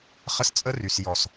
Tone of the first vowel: high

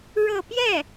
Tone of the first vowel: falling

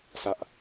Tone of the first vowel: high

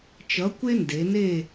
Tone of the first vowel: rising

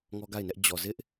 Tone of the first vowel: high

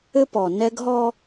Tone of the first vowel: high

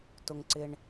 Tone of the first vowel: low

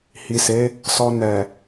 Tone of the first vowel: low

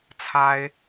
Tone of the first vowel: high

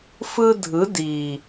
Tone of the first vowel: high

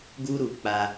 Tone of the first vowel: high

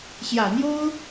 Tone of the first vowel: low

